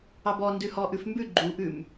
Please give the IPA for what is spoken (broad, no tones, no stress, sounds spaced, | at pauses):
ɑ b ɔ n d ʉ h ɔ ʔ ʉ f m b ʉ ɡ͡ǃ u ʔ ʉ m